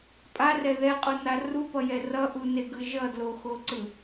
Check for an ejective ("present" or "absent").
present